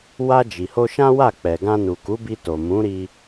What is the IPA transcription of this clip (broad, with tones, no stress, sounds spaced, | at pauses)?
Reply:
w a˧ d͡ʒ i˨ h o˧ ʃ ã˦ w a˦˨ k͡p ɛ˨ ɡ ã˧ n u˨ k u˨˦ b i˧ t o˨ m ũ˨˦ ɾ i˧